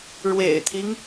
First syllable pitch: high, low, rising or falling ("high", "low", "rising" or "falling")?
low